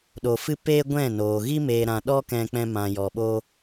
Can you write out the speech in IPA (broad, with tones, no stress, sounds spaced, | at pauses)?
ɗ o˨ f ɨ˦ p eː˦ ɡʷ ɛ̃˦˨ n oː˨ ɣ i˦ m eː˨ ɾ ã˨ ɗ ɔ˦ k ɛ̃˧ k͡p ɛ̃˧ m ã˨ j ɔ˨ ɓ o˦